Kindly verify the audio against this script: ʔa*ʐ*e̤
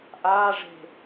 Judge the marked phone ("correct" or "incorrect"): correct